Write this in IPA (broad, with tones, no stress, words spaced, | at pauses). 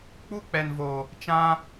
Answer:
k͡pu˦k͡pɛ˨n vo˨ | t͡ʃã˧